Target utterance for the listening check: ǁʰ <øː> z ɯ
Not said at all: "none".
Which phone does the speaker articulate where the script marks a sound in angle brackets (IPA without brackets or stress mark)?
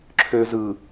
øː